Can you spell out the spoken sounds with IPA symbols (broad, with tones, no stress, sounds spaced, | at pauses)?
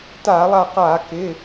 t a˧˩˧ lˠ a˧˩ q a˧˩˧ k ɪ˩˧˩